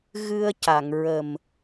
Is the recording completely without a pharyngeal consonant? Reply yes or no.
yes